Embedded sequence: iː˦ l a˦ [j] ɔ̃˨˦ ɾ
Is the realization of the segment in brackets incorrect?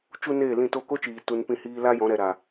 no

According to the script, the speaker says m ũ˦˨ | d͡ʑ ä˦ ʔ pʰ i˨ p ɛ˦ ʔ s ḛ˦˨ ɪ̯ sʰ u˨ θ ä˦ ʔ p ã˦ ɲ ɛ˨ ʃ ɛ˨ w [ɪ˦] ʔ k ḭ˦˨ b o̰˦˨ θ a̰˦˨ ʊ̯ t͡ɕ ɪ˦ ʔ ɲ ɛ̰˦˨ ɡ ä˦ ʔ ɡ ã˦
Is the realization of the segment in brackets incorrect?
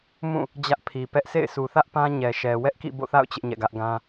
yes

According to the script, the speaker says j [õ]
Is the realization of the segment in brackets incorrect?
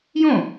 no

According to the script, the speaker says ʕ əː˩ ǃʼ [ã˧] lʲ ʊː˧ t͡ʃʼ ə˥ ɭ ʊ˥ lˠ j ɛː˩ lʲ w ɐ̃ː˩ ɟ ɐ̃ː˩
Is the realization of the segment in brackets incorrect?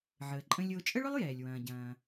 yes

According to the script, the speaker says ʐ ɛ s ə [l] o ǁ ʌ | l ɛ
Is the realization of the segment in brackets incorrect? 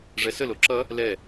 no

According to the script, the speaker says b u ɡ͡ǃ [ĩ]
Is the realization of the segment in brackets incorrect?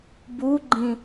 no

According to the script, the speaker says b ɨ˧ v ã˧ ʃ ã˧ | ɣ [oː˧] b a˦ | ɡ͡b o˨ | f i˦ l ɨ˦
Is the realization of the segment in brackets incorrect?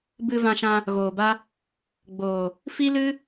yes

